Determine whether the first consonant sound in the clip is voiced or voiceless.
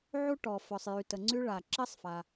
voiced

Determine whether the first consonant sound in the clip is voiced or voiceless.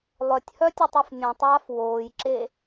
voiced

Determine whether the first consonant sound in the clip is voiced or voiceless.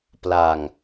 voiceless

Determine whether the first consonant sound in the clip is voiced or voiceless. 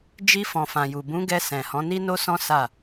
voiced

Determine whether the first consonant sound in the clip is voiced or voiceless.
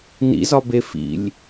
voiced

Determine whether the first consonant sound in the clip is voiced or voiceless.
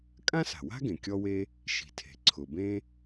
voiceless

